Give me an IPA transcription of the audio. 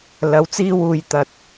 lɐ˨˥wt͡siː˧wuː˨j t̪ɐ˨t̚

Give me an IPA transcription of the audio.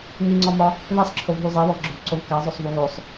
ŋiŋ͡ǀɒmɒ | ðesˤǁʰovɦu zˤeβɒvɡ͡ǁovǀov kæzˤosˤvu ɣosˤ

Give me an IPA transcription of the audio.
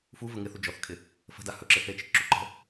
fuvə ŋɪθu d͡ʒɔθkʰɪ | fə̤da hɵǁɪ θet͡ʃekǁu ǃə̤

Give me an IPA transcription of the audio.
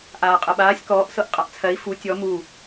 ʔaːqʼɜɓaːsʲ kɔːʔ sɤʔqʼaʔt͡sʰɜi̯ fu tʲɔ mu

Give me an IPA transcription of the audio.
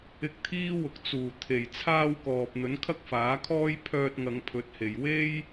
ɪ˧k̚t̪ʰiː˥ wʊ˨k̚ t͡suː˨˩ t̪ʰe˨˩j t͡sʰaː˧wkɔː˨p̚ n̪ɵ˨˥nkʰɐ˥k̚faː˨˥kʰɔː˥j pʰœː˧t̚ŋɐ˨˧ŋpʰɵ˨˥t̚he˨j we˥j

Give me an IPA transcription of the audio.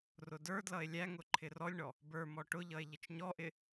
rʊdə˞dlʌe̯ lʲæŋʊ ǃʰɪrɔlʲɳɔ | bə˞m ɔʈʊʎʌe̯ ʎɪt͡ʃɲɔʔɪ

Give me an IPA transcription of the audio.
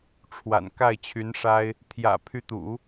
ʈ͡ʂʰwa̰˨˩n ka˥˩ɪ̯t͡ɕʰy˧˥nʂa˥ɪ̯ | t̪ʰjä̰˨˩ pʰy˧˥t̪ṵ˨˩˦

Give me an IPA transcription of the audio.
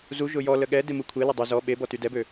zu ʒʊjɔlə ɠɛ demukʷʰelʊ dˤø zɔ ɓebɔ tydɛbø

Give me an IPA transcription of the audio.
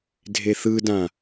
dʱeθɯdã

